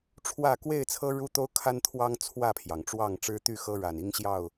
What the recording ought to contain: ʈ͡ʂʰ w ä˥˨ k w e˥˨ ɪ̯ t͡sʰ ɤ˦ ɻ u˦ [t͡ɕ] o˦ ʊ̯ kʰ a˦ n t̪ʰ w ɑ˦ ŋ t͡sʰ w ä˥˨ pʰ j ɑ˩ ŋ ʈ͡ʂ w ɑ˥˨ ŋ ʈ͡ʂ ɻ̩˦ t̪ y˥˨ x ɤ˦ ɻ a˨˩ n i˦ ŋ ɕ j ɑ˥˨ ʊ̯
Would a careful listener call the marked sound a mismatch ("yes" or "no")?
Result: yes